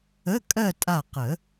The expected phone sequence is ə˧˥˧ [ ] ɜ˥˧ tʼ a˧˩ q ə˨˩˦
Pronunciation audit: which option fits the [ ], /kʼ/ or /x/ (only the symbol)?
kʼ